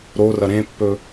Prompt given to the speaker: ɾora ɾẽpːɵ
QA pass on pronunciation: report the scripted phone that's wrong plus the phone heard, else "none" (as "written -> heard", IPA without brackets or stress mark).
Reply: a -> ɐ